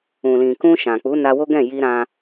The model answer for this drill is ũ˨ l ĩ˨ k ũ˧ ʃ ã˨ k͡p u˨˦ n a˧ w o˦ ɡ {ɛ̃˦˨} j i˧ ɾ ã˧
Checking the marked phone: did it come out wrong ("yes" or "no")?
no